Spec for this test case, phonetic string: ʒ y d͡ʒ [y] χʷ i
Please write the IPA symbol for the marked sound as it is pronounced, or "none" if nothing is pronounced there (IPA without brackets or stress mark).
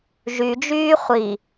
yː